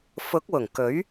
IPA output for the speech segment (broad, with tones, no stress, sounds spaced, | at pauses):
f ʊ˨˥ k̚ w ʊ˨˩ ŋ k ɵ˨˥ ɥ